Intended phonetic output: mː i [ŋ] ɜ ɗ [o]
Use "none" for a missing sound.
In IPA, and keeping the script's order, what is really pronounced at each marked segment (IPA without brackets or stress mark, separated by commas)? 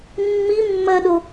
mː, o